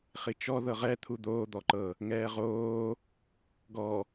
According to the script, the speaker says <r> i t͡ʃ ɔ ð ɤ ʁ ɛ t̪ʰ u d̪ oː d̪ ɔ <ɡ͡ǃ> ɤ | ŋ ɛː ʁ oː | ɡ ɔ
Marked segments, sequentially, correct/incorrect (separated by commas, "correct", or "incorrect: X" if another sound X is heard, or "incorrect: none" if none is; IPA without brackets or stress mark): incorrect: χ, incorrect: ǃ